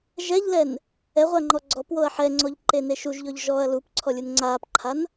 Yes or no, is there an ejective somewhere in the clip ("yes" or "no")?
no